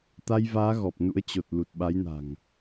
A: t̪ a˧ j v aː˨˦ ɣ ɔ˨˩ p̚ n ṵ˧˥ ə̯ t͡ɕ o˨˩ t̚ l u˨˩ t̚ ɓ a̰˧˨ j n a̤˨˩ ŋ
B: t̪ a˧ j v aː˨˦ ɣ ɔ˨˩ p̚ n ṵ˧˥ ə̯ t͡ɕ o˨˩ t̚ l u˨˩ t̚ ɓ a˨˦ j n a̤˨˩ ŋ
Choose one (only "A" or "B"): B